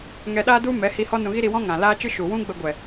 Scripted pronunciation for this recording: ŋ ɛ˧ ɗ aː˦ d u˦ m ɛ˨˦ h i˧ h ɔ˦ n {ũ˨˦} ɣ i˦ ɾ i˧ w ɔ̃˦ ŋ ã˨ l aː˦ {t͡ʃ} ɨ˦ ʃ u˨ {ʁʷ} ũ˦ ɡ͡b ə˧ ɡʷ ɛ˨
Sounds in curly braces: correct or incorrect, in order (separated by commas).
incorrect, correct, incorrect